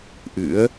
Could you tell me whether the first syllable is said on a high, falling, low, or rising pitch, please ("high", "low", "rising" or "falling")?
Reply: rising